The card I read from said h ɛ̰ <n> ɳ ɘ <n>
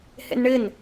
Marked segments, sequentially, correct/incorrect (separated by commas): correct, correct